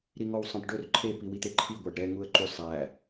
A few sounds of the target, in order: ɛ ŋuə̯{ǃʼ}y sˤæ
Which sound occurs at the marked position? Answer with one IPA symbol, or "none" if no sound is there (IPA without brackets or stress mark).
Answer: ǃ